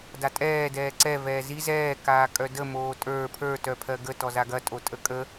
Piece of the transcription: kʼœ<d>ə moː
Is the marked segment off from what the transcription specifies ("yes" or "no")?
no